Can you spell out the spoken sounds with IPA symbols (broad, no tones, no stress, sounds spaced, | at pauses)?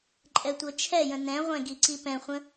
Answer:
ǃʼ ɛ tʷ ɤ t͡ʃʰ ɛ j ə̃ n ɛ̃ ʁʷ ɛ̃ ɡ i ǀ i p ɛ̃ χʷ ə̃